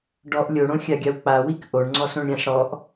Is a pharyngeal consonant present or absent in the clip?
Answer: absent